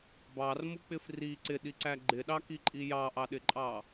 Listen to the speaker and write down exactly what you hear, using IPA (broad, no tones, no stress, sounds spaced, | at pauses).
b ɑ r m u k͡p ɪ f r i ǀ ɪ ɗ i ǀ æ ɡ͡ǃ ɪ ɗ ɑ k i ǃʼ i j ɑ ʔ ɑ ɗ ɪ ǃʼ ɑ